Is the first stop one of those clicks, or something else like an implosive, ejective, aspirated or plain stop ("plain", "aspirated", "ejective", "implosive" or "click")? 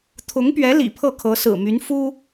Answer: aspirated